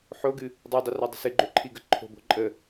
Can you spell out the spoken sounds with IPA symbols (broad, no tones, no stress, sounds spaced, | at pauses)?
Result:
ħ o ɡ ɨ | dˤ ɯ dˤ ɨ r a dˤ ə̤ s ɨ ɡ͡ǃ ø ǃʰ i ɡ ə ǃʰ o̤ b o̤ ǃʼ ə